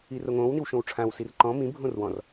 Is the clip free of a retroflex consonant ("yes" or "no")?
no